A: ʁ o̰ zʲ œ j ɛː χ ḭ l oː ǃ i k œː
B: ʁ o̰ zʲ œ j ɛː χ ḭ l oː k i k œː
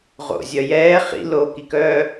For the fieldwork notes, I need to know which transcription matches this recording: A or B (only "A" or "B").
B